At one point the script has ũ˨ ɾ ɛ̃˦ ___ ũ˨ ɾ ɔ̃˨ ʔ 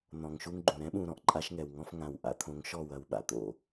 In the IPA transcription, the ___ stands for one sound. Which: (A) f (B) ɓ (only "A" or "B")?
B